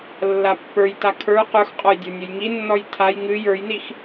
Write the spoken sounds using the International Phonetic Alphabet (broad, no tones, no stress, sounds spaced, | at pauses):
lː a pː ə˞ j t a kʰ ə˞ q ə˞ x qʼ ɔ j dʲ ə˞ nʲ ə j ŋ i nː ɔ j tʰ a j ŋ ɨ j ə˞ j n i x